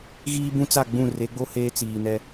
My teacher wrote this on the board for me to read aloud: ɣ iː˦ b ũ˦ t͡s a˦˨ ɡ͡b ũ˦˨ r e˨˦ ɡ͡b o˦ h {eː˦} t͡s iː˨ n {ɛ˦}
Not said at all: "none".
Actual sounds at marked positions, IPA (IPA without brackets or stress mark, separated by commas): eː˦, ɛ˦